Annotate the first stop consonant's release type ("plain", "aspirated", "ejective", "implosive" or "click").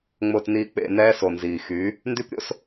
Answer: plain